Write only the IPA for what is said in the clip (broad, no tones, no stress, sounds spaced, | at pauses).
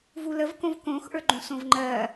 v u l ə v k õ v k õ x ʔ ə˞ ɡ͡ǃ ũ s õ v ŋ͡ǃ ɜ